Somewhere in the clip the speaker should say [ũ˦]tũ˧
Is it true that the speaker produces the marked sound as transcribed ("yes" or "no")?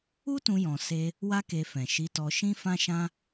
no